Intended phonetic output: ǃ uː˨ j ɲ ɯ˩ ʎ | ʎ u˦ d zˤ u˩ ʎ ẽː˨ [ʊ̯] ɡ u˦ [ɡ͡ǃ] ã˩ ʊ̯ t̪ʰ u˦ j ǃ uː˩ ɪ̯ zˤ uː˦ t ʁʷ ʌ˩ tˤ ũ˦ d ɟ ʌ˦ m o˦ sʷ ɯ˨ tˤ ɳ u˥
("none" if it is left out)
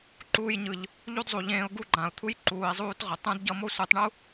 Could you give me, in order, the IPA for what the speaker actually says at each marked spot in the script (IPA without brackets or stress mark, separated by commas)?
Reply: ʊ̯, ɡ͡ǃ